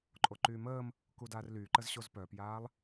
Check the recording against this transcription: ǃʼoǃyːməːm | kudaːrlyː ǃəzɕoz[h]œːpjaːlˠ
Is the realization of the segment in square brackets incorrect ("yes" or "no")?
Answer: yes